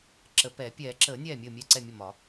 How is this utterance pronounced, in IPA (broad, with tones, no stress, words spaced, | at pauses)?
ǁə˨˩˦pɛː˨˩˦ pʲɛː˨˩˦ǁəː˨˩˦ nʲɛː˥˩mʲəː˥˩mʲɛ˥˩ ǀɛ˥˩mʲə˥˩mɒ˨˩˦